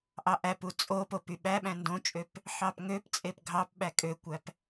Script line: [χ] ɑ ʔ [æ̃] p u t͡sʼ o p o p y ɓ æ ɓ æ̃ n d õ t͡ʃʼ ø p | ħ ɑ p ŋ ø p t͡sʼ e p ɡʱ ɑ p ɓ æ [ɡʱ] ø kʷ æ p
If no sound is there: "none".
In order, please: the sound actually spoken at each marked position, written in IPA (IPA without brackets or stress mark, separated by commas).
ʔ, æ, kʼ